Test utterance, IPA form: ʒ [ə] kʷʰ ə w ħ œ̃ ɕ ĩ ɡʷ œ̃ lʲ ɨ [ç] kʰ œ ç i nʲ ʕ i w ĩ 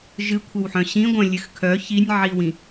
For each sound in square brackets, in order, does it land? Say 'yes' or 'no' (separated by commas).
no, no